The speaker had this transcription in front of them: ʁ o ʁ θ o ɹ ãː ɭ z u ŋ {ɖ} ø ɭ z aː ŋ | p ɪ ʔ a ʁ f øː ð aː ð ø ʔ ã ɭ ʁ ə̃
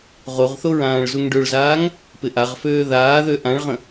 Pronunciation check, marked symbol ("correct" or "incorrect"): correct